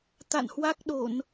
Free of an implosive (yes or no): no